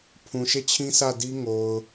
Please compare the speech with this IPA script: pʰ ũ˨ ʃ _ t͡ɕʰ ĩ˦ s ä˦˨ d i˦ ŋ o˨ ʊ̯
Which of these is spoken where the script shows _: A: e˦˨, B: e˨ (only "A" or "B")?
A